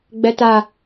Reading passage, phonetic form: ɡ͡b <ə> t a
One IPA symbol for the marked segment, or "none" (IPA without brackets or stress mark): ɛ